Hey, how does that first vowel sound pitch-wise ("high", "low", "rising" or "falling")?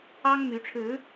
high